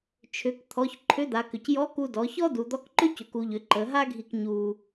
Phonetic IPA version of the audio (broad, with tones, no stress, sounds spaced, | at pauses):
t͡ʃʰ ʏ˩˧ k t̪ʰ ɔ˩˧ ç ǃʰ ʏ˧˥ d̪ a˩˧ k ʏ˩ c j ɔ˧˥ k u˧ d ɔ˩˧ ç ɔ˥ d u˩ d̪ ɔ˧˥ k ǃ ʏ˥ c ʏ˩˧ k u˩˧ ʎ ʏ˩˧ ǃ ə˩˧ ɦ a˥ ɡʱ i˧ k ɲ u˧